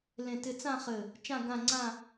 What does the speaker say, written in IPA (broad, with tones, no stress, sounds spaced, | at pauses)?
l ẽ˥˧ t ɪ˥ t͡s ã˥˧ χ ɘ˧˩ | t͡ʃ ã˥˧ ɡ ã˥˧ ŋ͡ǀ ã˥˧